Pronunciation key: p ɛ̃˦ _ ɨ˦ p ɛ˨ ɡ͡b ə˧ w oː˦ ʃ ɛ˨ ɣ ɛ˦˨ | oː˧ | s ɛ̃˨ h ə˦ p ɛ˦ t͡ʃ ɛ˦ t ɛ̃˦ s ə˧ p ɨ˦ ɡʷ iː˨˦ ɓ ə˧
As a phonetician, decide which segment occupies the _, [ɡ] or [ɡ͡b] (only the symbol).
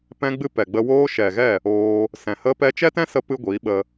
ɡ͡b